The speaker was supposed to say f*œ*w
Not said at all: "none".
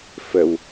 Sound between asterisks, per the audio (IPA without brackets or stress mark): ə